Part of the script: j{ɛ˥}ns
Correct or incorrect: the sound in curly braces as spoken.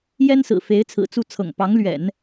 correct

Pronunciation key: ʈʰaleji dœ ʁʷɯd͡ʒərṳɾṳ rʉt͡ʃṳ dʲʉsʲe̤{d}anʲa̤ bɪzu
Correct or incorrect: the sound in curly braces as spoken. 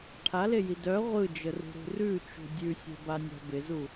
incorrect: b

